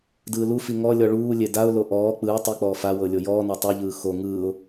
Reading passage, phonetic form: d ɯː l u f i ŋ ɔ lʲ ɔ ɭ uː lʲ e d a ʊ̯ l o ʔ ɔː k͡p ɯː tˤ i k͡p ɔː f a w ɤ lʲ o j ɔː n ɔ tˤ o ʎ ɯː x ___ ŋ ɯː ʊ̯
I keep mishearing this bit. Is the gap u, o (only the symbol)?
o